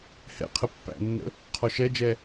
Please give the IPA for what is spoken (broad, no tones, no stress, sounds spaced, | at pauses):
h ɛ̰ qʰ ə pː æ̰ nː ə̰ | qʰ ɔ ʃ ɛ d͡ʒ ɛ